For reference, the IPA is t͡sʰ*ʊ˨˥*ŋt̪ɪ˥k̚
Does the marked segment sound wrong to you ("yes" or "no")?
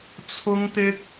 yes